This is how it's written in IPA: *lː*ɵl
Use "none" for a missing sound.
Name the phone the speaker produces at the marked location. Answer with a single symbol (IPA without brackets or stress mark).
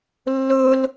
lː